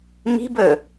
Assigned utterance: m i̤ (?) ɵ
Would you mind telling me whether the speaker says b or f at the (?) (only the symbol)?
b